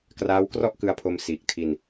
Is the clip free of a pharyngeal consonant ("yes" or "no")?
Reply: yes